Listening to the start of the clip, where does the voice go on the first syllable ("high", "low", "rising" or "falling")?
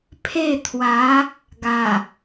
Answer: falling